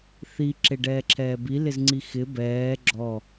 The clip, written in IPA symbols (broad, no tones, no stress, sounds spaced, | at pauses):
θ i ǁ e ɖ ɛː ǁʰ ɛː b i l ɪ z ŋ͡ǀ i x ɪ b ɛː ɡ͡ǁ ɔ